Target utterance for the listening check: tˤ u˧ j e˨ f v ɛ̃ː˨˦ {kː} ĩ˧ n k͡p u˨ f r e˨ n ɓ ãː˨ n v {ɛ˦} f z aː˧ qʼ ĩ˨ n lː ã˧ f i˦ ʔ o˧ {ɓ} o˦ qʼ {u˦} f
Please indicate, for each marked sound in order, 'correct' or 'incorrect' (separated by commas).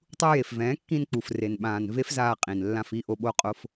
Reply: correct, incorrect, correct, incorrect